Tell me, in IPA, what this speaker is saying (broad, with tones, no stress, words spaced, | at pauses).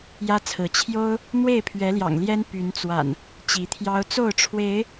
jä˦t͡sʰɹ̩˨˦ t͡ɕʰjo˦ʊ̯ | n̪we˥˨ɪ̯pʰɥɛ˨˦ljɑ̰˨˩ŋljɛ˦n py˨˦nt͡swa̰˨˩n | t͡ɕi˨˦t̪ʰjɑ˦ʊ̯ t͡so˥˨ʊ̯ʈ͡ʂʰwe˨˦ɪ̯